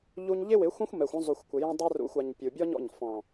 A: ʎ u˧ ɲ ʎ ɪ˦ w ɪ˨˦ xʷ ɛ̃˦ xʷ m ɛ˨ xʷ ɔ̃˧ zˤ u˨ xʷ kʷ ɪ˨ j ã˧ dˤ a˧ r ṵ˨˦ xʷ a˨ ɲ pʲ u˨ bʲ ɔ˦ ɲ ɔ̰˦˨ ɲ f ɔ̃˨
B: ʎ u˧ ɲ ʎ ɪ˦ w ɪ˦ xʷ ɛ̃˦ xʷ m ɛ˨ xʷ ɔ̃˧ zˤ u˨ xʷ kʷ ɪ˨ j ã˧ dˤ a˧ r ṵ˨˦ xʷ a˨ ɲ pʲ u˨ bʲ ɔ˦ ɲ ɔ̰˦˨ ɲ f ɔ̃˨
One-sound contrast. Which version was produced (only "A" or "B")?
A